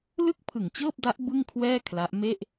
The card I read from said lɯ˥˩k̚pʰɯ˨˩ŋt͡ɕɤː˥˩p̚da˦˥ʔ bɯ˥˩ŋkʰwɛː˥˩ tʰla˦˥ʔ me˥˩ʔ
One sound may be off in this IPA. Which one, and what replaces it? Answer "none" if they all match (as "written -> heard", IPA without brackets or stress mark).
tʰ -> kʰ